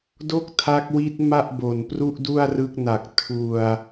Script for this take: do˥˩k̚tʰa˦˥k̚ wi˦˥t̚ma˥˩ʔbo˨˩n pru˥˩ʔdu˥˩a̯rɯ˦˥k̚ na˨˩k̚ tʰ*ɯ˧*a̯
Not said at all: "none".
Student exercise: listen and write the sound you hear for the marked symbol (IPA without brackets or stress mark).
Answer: u˧